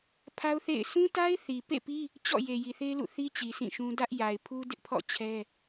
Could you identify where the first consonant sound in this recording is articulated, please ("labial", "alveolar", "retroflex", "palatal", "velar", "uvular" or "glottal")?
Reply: labial